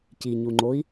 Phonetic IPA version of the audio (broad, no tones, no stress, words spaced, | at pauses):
ciɲuŋ͡ǃoi̯